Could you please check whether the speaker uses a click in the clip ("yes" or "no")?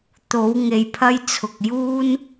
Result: no